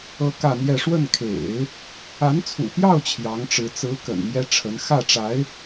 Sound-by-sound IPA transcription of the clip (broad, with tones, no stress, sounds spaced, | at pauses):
ɤ˥ k ä˥˧ n̪ j ɛ˥˧ ʂ w ə˥˩ n kʰ ḛ˨˩˦ ɪ̯ | a˧˥ n t͡sʰ ṵ˨˩ p j ɑ˥˩ ʊ̯ t͡ɕʰ j ɑ˧˥ ŋ ʈ͡ʂ ɻ̩˧˥ t͡s ɹ̩˧˥ k ə̰˨˩ n m j ɛ˥ ʈ͡ʂʰ ə˧˥ n x ä˥˩ ʈ͡ʂ a˧˥ ɪ̯